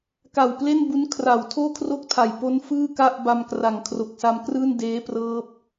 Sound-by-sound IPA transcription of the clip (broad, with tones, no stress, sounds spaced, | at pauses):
k a˨˩ w p l e˥˩ n b u˦˥ n kʰ r a˩˦ w tʰ oː˥˩ kʰ r o˥˩ k̚ tʰ a˨˩ j p o˦˥ n f ɯː˥˩ k a˥˩ ʔ b a˧ m k r a˩˦ ŋ kʰ r o˨˩ k̚ s a˧ m k r ɯː˥˩ n d eː˦˥ p r ɤː˦˥ p̚